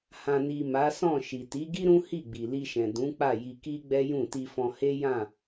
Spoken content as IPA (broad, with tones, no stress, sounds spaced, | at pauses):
h ã˨ n i˨ m a˨˦ s ɔ̃˦˨ ʃ i˨ t i˨˦ ɡ i˦ ɾ ũ˦ h i˦˨ ɡ͡b i˨ l i˧ ʃ ɛ̃˨ d ũ˨˦ k͡p a˦˨ j i˧ k i˦ ɡ͡b ɛ˦ j ũ˦˨ t i˧ f ɔ̃˧ h e˦ j ã˦˨